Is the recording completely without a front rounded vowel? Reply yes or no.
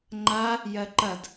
yes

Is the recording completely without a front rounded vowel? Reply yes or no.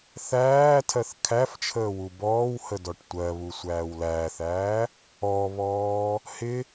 yes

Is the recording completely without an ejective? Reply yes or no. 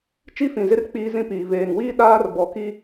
yes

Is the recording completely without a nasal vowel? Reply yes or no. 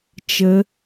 yes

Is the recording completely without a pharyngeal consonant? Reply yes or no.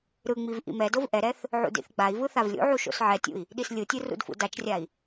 no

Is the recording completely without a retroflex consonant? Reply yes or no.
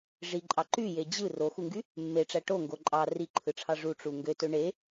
no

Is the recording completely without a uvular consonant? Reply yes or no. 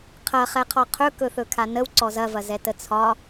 no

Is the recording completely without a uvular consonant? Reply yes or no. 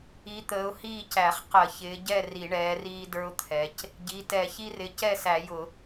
no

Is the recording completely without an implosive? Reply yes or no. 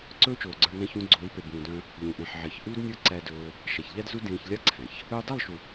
yes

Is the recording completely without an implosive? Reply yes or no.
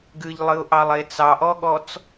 no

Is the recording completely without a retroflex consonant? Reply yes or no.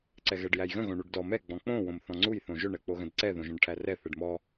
no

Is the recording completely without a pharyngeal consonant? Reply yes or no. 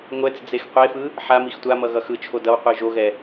no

